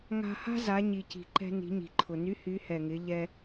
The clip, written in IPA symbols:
ŋa̤˧ha̤˥ za˩˧ɲi˩ci̤˩ ǃɛ̤˧ ni̤˩˧ɲi̤˩ǃʰʊ˩ny˧˥ hy˩˧hɛ˩ŋɪ˩˧ ʎɛ˧

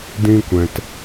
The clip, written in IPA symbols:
dĩ˦kʷɛ̃˧t

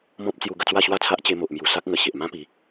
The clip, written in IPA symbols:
mɔ̃˦p̚t͡sju˧ ɡə˧t͡swa˥˧ɕwa˥˧t͡sʰa˦ʔ t͡ɕe˧mo˨ʔmju˨˩ sa˦k̚ŋə˨˩ ɕe˨ʔmã˦pi˨˦

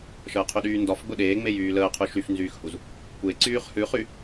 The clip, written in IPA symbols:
ʃəːqʰyɗyːndɒf ɡ͡bʊɗeːŋ͡mej yːləː qʰʉʃyfnzyːxhuz | kʷe ǀyːχhʉχy

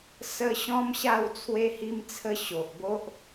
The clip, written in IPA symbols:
sə˧ ɕɔ̃˦mɕa˥˧w t͡sʰwe˧hi˧mt͡sʰə˧ ɕo˨ʔbo˦ʔ

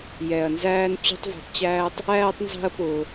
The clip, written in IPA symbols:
jɛ˧ɐ̯nzæː˦n t͡ɕṳ˦tˤvṳ˧tˤt͡ɕæː˦tˤ | æː˦tˤnzɑ̤˦ɐ̯pʊː˧

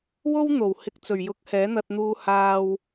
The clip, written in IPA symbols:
wo˥w n̪o˨˩w hɪ˨˥k̚t͡sɵ˨˩ɥjʊ˨˥k̚ hɛː˨˥n̪ɐ˧t̚n̪uː˧ haː˧w

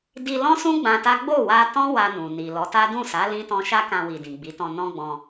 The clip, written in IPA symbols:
di˧lɔ̃˦sũ˦ ɡ͡bã˧ta˦ ɡ͡bo˦˨wa˧tɔ̃˦ wa˧nũ˨ ni˨ lɔ˨˦ta˦ dũ˦˨sa˨˦ lĩ˦tɔ̃˦ ʃa˦kã˧wi˨ dĩ˨ɡ͡bi˨˦tɔ̃˧ nɔ̃˦ɡ͡bɔ̃˧

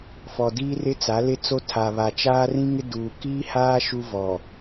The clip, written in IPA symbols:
fɔ˨diː˦rɪ˦ t͡sa˨˦lɪ˦t͡so˦ tʰa˨βa˨t͡ʃaː˦ rĩ˦ŋɪ˦duː˨ kiː˦haː˦ ʃu˦vɔ˨

